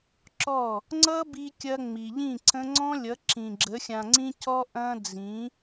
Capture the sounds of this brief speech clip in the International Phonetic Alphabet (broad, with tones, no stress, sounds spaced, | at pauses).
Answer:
ǁ ɔ˦˨ | ŋ͡ǀ ʌ˦ b i˧ kʲ ɐ˧ ŋ͡m i˨ ʎ ĩ˦˨ ǀ ə̃˦ ŋ͡ǀ ɔ̃˦ lʲ ʌ˨˦ ǁ ĩ˨ ɡ͡ǁ ə˨˦ xʲ ã˨ ŋ͡ǀ ĩ˧ c ɔ˦ ʔ ɐ̃˦ d͡z ĩ˨˦